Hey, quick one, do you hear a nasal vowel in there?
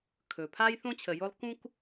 yes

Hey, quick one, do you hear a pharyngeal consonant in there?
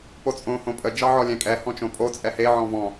yes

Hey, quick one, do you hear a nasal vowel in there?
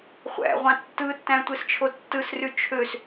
yes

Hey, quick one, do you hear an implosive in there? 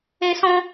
no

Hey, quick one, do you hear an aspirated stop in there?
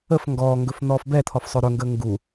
yes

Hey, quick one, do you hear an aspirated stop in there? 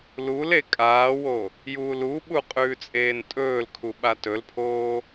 yes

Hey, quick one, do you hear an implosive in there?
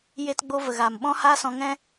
yes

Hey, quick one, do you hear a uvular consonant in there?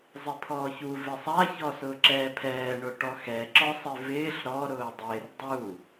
no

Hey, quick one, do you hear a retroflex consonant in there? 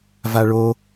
yes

